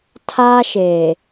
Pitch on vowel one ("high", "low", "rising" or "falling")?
high